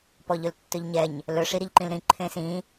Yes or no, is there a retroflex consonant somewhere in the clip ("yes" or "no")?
yes